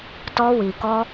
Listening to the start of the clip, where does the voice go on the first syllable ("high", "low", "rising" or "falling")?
high